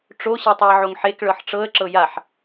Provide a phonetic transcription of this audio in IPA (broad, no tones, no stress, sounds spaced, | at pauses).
ʈ͡ʂ o ɕ e tˤ o ɪ̯ ʕ o ŋ ħ e k ɭ ɤ ħ ʈ͡ʂ ɤ ə̯ ǁ ɤ j a ħ